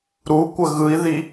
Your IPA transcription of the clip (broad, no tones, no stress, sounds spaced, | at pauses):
ɾ u kʷ ə ɣ ɯ i̯ ð i